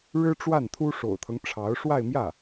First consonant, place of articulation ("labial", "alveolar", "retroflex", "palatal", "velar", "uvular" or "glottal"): retroflex